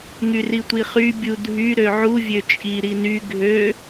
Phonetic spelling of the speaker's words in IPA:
ŋ y r i tʷ i χ y bʲ u dʱ y ɾ ø ʕ u vʲ ø t͡ʃʼ i ɾ i n y ɡʱ ø

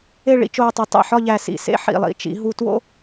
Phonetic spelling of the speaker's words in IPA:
e˥˧ ɭ ḭ˥˧ t͡ʃ oː˧ tˤ i˩˧ tˤ ḭ˧˩ ħ ɒ˥˧ ʎ æ˧˩ s ḭ˧˩ s ḛ˥ ħ ḭ˧˩ lˠ ḭ˥˧ t͡ʃ ḭ˩˧ ɦ u˧ t w o̰˥

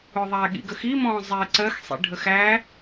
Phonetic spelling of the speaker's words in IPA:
ʊ ðˤ æ ɠ ḭ ɡ ə x i m ɔ̃ː zˤ ɛ ǀ ɜ x sˤ ḭ ɖʱ ə x æ

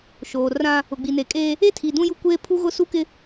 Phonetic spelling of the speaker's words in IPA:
ʃ oː˨ r ã˦ | ʊ˨ ɡ͡b i˨ n e˨ kʼ eː˦ | e˦ tʰ i˨ d ũ˦ j u˦ kʷ eː˦ pʰ u˦ ɣ ʊ˦ s u˦ k ɪ˦

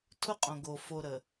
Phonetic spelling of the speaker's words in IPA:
tʰ ʊ˦ qʼ õ˨ ɡ o˨ f o˨ ɾ ə˨

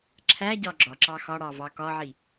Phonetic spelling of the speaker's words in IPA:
ǁʰ æ ɟ ɒ ɡ͡ǁ ɒ ǁ ɑ x ɒ ɽ ɑ v ɑ k ɒ ʕ i

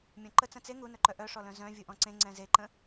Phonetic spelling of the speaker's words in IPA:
mʲ ɔ̃ ǃ ə t͡s ə̃ t͡s e ŋ u n œ ǃ œ ʔ œ ʂ ɔ l œ̃ z œ̃ vʲ u ʔ ɔ̃ ǀ ẽ ŋ͡ǀ ɛ̃ z e ǃ ə̃

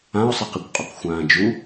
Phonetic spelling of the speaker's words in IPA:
ã ʊ̯ sˤ i q i kʷ qʼ u q xʷ ãː d͡ʒ u

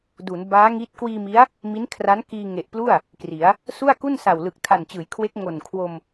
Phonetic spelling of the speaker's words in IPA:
d u˩˦ n b aː˦˥ ŋ i˦˥ t̚ k w iː˧ m i˦˥ a̯ | m i˦˥ n kʰ r a˦˥ n k iː˧ ŋ e˨˩ ʔ p l u˥˩ a̯ | k r i˩˦ a̯ | s u˥˩ a̯ k u˥˩ n s a˨˩ w l ɯ˨˩ k̚ tʰ a˨˩ n t͡ɕ ɯː˩˦ j kʰ w e˦˥ k̚ ŋ o˨˩ n kʰ w o˧ m

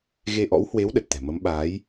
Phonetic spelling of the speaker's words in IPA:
ɣ e˧ ʔ ɔ̰˧˥ w h w e˨˦ w ɗ ə˨˩ t̚ t̪ ɛ̤˨˩ m ə˨˦ m ɓ aː˨˦ j

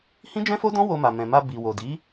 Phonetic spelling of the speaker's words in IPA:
h ĩ˦ d͡ʒ ɛ̃˦ f o˦ d ɔ̃˦ w o˧ m a˨ m ɛ̃˨ m a˧ b i˨ w o˨ d i˨˦

